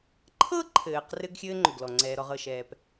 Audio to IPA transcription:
ǃʰ ɤ˥ ǃʰ ɘː˩ q r ɘ˦ ɡ xʲ ɘː˦ ŋ͡ǃ o˩ ɡ l ɔ˩ ŋ͡ǀ ɛː˩ ɾ ɔ˨ ʁ ɤ˩ ʃ ɛː˩ p

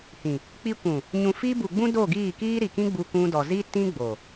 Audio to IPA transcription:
h ĩ˨ | k͡p i˧ kʷ ũ˨ | ɲ ũ˨ f i˧ b u˨ ɡ͡b ũ˦ d o˦˨ ɡ iː˦˨ k iː˦ ɾ i˨ k ĩ˦ ɡ͡b u˧ kʷ ũ˧ d ɔ˨ z iː˦ t ĩ˦ ɡ͡b o˨

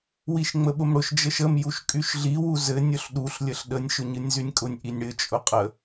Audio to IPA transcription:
w i ʃ ŋ͡m ə ɓ ʊ m ɽ ʊ ʃ d͡ʒ ə ʃ ə m j u ʃ kʼ y ʃ ɮ i w u z ɘ nʲ ʊ ɬ ɗ u ɬ lʲ ə ɬ ɗ ə nʲ ʃ ʊ ɲ ɨ nʲ z y nʲ kʼ ʊ nʲ ʔ i nʲ ɽ ɘ t͡ʃʼ ʊ qʼ ə

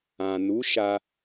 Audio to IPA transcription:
ã˨ n u˨˦ ʃ a˧

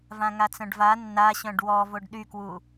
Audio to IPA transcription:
v ã ŋ a t͡s œ̃ ɖ v a nː a ɕ œ̃ ɖ w ɔ v o ɖ ɗ y k w u

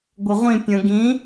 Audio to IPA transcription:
ɡʷ ə ʁʷ ĩ pʲ ə̃ ɡ ĩ

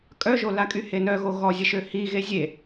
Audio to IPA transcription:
kʼ œ ʒ o l a kʼ y h e n œ ɣ o ɣ ɔ zʲ ə ʃ ø h i ɣ e zʲ e

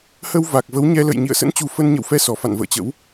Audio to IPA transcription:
h ə˧ w v a˨˩ k̚ v ə˨˦ w ɲ ɛ˧ l ə̰˧˨ j ɲ ḭ˧˨ ə̯ s ə̰˧˥ n t͡ɕ u˨˩ f ə˧ n ɲ ə̰˧˨ w f ɛ˧ s ɔ˧˩ f a̰˧˨ n v ə̰ː˧˨ t͡ɕ ə̰˧˥ w

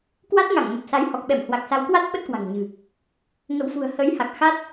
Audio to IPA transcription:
k w a˦˥ t̚ ŋ a˧˩ ŋ m ə˨˩ p̚ s a˨˦ j h ɔ˨˩ k̚ ɓ ɛ˧˩ m h w a˨˩ k̚ s a˨˦ w k w a˦˥ t̚ ɓ ə˦˥ t̚ k w a̤˨˩ ŋ ɲ ɨ̤˨˩ | ŋ ə̰˧˨ w f ṳ˨˩ ə̯ h ə˨˦ j h a˨˩ k̚ x a˦˥ t̚

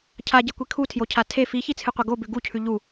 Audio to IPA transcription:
cʰ a ɟ e kʷ i kʰ u tʰ j o cʰ a tʰ e f i ç i t͡sʰ ɨ qʷ ɐ ɡ o b ʉ ɡ u cʰ ʉ ʎ u

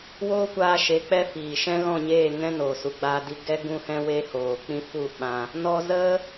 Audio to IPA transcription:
w oː˦ kʷ aː˧ ʃ e˨˦ k͡p ɛ˦ f iː˨ ʃ ɛ̃˦ ɣ ɔ̃˦˨ ɲ eː˦˨ ŋ ɛ̃˦ n oː˨ s u˨ ɡ͡b aː˧ d i˧ ɡ ɛ˦ ɡ ũ˦ h ɛ̃˦ w e˦ h oː˨ k͡p ĩ˦ f u˦˨ ɓ ã˧ | n ɔ˧ z ə˦

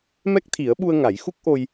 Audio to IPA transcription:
m ɛ˦˥ k̚ t̪ʰ i˨˩˦ ə̯ ɓ u˧ ə̯ ŋ a˨˩˦ j x u˦˥ k̚ ʔ o˧ j

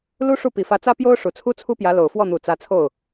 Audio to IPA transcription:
l u˥ ʂ u˥˩ p i˨˩ f ä˧˥ t͡s ä˥ p j o˥ ʊ̯ ʂ u˨˩ t͡sʰ u˥ t͡sʰ u˥ p j ä˧˥ l o˨˩ ʊ̯ f w ɔ˥˩ n̪ u˨˩ t͡s ä˧˥ t͡sʰ o˥˩ ʊ̯

